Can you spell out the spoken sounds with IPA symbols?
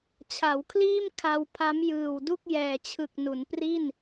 t͡ɕʰ a˩˦ w kʰ l iː˥˩ m kʰ a˧ w pʰ a˦˥ m j ɯː˨˩ w d u˥˩ k̚ j ɛː˨˩ t͡ɕʰ ɯ˨˩ k̚ n u˩˦ n p r i˥˩ n

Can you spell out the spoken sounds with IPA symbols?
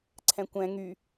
ǀʰ ɛ̃ kʷ ɛ̃ ŋ y

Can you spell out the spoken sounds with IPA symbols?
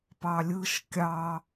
p ɑ lʲ ɯ ʃ kʲ ɑ

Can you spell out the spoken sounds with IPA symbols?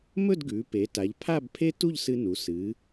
m ɵ˥˧ d ɡ ʉ˩˧ p e˩˧ t a˩˧ ʎ pʰ a˥˧ b pʰ e˥ t u˥˧ ʎ s ɨ˧ n u˩˧ s ɨ˩˧

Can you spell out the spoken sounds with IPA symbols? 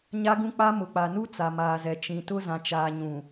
ɲ a˦ ɡ ũ˦ k͡p a˦ m ʊ˨ k͡p a˨ n u˦ t͡s a˨ m aː˨ z ɛ˨ t͡ʃ ĩ˨ t ʊ˦ z ã˨ t͡ʃ aː˨ ɲ ũ˨

